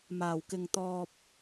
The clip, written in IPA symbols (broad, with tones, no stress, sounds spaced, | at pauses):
m aː˨˩ w k ɪ˨ ŋ t̪ ɔː˧ p̚